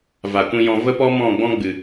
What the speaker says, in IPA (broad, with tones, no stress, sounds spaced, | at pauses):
v a˨ kʷ ĩ˧ j ɔ̃˧ v ə˦ p ɔ˦ m ɔ̃˦˨ ɡ͡b ɔ̃˦ ɡ͡b ɨ˨